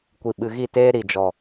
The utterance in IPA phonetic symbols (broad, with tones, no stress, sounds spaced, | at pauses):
kʷ i˨ ɓ ɨ˨ ɣ i˦˨ t eː˦ ɾ i˨ d͡ʒ ɔ˨